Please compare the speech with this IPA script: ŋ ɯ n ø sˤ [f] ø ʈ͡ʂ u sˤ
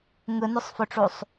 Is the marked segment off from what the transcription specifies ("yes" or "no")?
no